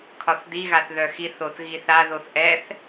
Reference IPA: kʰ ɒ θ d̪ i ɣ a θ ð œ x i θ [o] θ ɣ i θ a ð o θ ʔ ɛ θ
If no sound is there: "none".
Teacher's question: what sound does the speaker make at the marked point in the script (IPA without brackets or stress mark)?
o